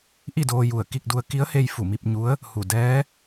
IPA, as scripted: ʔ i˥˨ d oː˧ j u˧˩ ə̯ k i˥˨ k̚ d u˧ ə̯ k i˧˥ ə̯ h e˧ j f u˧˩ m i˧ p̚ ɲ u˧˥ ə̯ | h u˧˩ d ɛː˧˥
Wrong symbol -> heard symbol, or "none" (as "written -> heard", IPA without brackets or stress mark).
none